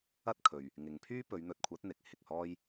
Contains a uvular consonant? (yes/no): no